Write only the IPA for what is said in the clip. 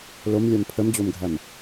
l o m lʲ a m pʰ ə m d͡ʑ o m ɡʱ æ m

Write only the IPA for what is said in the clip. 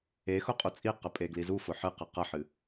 e x ʊ qʼ u t͡sʼ i q ə pʼ e ɡ l i z u f ʊ ħ ɨ q ɨ q ɐ ħ ɨ

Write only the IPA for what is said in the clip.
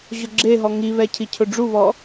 ʑ ʊ ɡ͡ǁ e ɦ ɔ ŋ i β ɛ cʰ i cʰ ʊ ɖ͡ʐ u β ɔ

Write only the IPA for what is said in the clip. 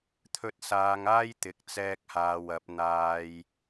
t̪ʰ ɵ˧ t̚ s aː˨˧ ŋ aː˥ j t̪ ɪ˨˥ k̚ t͡s ɛː˧ k̚ h aː˨ w ɐ˨˥ p̚ n̪ aː˧ j

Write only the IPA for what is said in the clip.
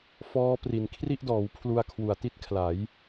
f ɔː˦˥ p r i˩˦ n kʰ r i˥˩ ʔ d ɔː˩˦ w pʰ l u˧ a̯ kʰ w u˨˩ a̯ t i˥˩ t̚ kʰ l a˩˦ j

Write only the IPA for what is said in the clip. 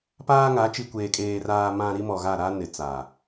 p aː˦ ŋ a˨˦ t͡ʃ i˨ kʷ eː˨ kʼ eː˨ r aː˨ m ã˨ ɾ i˦ m ɔ˨ ɣ a˦˨ ɾ a˦ n ɪ˨ t͡s aː˨

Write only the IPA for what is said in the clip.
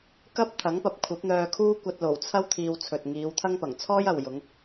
k ɐ˥ p̚ t̪ʰ ɐ˨˥ ŋ p ɐ˨˥ p̚ kʷʰ ɐ˨˥ p̚ n̪ œː˧ kʰ uː˥ kʷ ɐ˧ t̚ l o˨˩ w t͡sʰ ɐ˥ w t̪ʰ iː˧ w t͡sʰ ɵ˨ t̚ ŋ iː˨˧ w t̪ʰ ɐ˥ ŋ p ɐ˨˩ ŋ t͡sʰ ɔː˥ j ɐ˨ w j ʊ˨˧ ŋ

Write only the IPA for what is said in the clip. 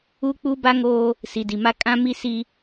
uː˦ k͡p u˦ b a˦ ŋ oː˦ | s i˨ d i˨ m a˦ kʼ ã˦ m i˦ s i˦

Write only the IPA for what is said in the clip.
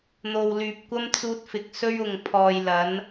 n̪ o˨ w l yː˨ p̚ kʷ ɐ˥ m t͡s uː˧ t̚ f ɪ˨˥ k̚ s ɵ˥ ɥ ʊ˨ ŋ pʰ ɔː˨ j l ɐ˨˥ n

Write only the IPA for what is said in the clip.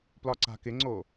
p l ɒ ǀ a̤ k ɪ ŋ͡ǀ o

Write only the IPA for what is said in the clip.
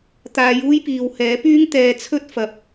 t̪ aː˨˧ j uː˥ j p iː˨ w h ɛː˨˥ p yː˥ ŋ t̪ ɛː˨ t͡sʰ ɵ˥ t̚ f ɐ˨˥ p̚

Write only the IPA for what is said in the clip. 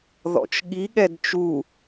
ð ɔ̰ t͡ʃ ɠ i ɠ ɛ d t͡ʃ u

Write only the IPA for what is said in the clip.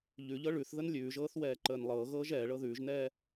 ʎ ʉ ʎ ɤ ɭ ʉ θ ð ə n lʲ ʉː ʒ ɤː θ w ɛː ǃ əː n lˠ ɤː ɣ ɤː ʒ ɛː ɭ ɤ ð ʉː ʒ n ɛː

